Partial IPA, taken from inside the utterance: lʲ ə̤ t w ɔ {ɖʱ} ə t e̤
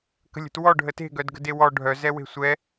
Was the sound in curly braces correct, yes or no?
yes